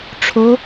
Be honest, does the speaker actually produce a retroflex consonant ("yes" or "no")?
yes